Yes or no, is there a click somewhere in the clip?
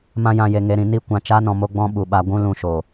no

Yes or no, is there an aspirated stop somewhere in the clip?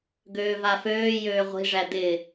no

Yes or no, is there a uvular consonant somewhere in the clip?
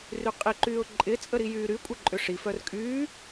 yes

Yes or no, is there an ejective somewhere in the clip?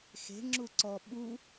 no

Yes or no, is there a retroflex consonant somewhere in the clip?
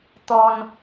no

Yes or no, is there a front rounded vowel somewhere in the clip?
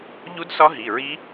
no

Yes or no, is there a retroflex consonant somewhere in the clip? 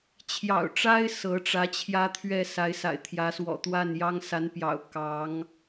yes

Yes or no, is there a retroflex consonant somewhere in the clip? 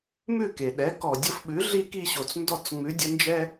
no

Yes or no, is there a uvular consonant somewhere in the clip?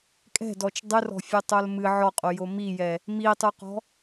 yes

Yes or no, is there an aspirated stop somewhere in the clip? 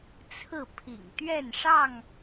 yes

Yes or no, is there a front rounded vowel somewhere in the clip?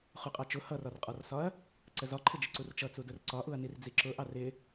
no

